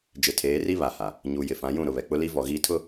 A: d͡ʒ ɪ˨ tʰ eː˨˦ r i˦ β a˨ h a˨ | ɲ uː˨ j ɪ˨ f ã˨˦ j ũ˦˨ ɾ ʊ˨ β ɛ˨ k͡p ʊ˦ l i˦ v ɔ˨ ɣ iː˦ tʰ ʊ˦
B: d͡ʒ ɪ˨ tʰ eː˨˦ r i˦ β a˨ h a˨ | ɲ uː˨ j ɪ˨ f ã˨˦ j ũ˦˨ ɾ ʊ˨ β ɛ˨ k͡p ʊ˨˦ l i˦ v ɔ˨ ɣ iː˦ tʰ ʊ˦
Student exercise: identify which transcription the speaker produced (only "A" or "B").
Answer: A